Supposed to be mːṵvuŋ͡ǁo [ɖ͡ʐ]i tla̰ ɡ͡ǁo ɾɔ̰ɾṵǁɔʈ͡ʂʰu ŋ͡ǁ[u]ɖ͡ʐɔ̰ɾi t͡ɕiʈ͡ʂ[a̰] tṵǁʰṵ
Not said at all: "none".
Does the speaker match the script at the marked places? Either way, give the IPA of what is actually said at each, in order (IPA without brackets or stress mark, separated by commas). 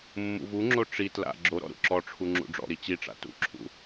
ʈ͡ʂ, ṵ, a̰